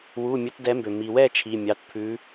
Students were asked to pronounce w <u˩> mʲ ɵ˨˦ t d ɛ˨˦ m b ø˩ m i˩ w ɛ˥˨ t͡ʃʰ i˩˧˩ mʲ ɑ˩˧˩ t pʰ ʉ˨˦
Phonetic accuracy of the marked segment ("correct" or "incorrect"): incorrect